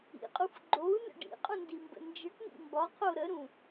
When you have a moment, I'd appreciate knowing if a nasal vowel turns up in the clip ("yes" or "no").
yes